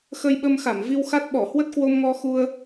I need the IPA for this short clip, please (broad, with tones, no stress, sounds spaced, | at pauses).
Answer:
x ə˧ j ɓ ə˧ m x a˧˩ m v i˧ w x a˦˥ t̚ ɓ ɔ˧˩ h w ə˦˥ t̚ k w o˧ m ŋ ɔ˧ x u˧ ə̯